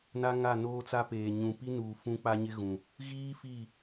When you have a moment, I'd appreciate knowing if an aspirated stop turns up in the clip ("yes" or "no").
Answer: no